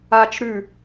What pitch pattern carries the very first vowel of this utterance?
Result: high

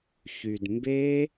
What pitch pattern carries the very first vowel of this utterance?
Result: low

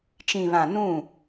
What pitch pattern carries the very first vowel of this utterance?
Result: low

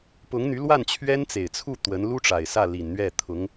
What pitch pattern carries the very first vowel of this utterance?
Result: rising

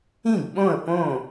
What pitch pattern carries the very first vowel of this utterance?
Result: falling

